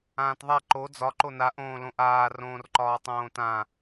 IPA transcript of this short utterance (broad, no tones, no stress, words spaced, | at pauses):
ãːtðˤa ǃo d͡zɒ ǃona ʔõːlõʔaː rõːrǃɒːtˤõːtã